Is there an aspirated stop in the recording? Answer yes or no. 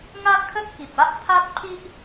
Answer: yes